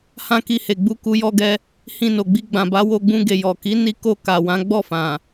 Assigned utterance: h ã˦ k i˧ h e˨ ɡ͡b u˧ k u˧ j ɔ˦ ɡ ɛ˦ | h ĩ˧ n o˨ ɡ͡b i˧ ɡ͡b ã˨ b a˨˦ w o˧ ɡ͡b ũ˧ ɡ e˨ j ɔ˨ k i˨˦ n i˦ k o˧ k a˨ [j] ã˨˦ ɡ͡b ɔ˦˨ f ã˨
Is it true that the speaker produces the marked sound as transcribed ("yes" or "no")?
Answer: no